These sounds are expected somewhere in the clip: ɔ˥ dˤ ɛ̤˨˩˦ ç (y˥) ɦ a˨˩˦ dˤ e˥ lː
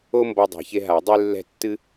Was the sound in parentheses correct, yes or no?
no